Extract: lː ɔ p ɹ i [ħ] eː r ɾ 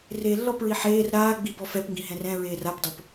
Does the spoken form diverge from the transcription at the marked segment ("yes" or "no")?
no